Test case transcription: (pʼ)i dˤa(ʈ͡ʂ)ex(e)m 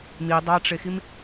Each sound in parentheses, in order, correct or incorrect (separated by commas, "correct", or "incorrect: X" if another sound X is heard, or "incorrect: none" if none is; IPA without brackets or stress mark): incorrect: m, correct, incorrect: i